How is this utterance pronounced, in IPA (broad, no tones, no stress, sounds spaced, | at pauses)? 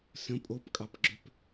s ə̃ pʼ o p kʼ ɑ p ɡ͡ǁ ø p